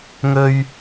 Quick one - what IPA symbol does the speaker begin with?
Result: ŋ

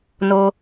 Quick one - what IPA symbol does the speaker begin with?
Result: n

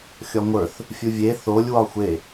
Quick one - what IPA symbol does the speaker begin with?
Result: xʲ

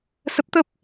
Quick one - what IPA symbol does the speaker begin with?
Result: s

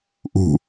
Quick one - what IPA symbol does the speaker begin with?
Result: ʔ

